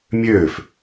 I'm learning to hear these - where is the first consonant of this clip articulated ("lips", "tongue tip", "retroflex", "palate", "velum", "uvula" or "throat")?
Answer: lips